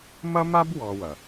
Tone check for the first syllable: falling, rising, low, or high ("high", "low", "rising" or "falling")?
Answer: high